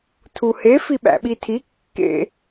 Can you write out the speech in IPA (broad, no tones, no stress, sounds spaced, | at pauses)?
tʰ u h e f i ɓ æ̰ ɓ i tʰ i kː ḛ